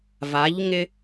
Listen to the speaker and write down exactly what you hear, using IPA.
va˨˦ʎ ŋɪ˦

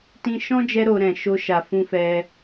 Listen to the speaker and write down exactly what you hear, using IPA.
tĩ˧ʃɔ̃˦ d͡ʒɛ˦ɾo˧ ɾɛ̃˨ ʃo˧ʃa˨fũ˧fɛ˧

